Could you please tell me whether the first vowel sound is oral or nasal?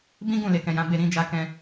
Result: nasal